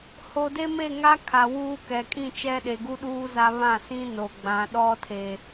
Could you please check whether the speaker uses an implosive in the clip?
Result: yes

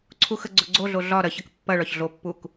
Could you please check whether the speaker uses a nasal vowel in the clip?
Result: no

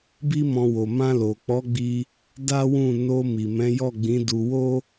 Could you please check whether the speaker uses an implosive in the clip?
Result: no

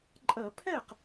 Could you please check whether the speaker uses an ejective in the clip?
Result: yes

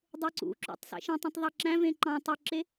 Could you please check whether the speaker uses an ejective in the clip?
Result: no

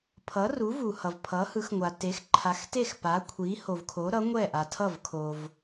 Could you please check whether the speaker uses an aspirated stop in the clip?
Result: yes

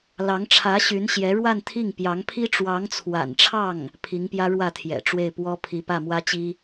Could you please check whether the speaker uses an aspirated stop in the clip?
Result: yes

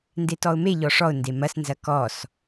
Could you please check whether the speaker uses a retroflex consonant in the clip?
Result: yes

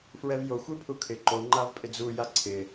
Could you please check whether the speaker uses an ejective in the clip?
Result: yes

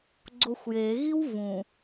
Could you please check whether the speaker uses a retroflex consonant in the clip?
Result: no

